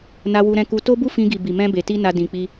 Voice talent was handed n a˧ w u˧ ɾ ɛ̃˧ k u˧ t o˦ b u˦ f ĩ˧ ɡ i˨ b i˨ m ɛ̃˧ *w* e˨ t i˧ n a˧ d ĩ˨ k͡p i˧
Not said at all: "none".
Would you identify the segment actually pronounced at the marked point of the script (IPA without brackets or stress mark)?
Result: b